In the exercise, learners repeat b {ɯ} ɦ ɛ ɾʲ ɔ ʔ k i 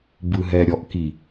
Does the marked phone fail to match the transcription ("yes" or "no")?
no